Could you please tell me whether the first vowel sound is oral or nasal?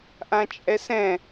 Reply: nasal